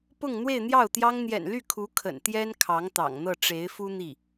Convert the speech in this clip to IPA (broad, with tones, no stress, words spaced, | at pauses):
pʊ˥˧ŋ n̪we˥˧ɪ̯n̪jɑ˥˩ʊ̯t̪jɑ˥ŋ n̪jɛ̰˨˩nly˥˩ kʰu˧˥kʰə̰˨˩nt̪jɛ˥n kʰɑ˧˥ŋt̪ɑ̰˨˩ŋn̪ɤ˥˩ ʈ͡ʂe˧˥ɪ̯fu˥ n̪i˥˩